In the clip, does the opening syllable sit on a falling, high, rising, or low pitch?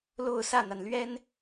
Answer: falling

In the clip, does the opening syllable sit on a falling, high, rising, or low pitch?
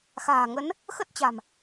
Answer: low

